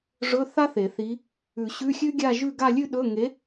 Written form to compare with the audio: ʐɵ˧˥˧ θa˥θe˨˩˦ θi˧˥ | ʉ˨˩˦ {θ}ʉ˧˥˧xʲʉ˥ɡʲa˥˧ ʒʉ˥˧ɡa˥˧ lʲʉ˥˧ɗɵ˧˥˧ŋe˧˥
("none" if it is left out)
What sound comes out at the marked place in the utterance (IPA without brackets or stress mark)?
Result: ɕ